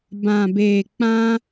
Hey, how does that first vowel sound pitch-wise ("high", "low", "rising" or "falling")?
low